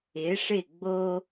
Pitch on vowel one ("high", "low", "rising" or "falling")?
rising